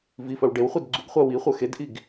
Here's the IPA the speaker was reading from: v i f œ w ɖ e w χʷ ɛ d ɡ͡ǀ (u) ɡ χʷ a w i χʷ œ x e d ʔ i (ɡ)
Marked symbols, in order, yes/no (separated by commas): yes, yes